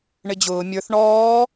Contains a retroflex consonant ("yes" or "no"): yes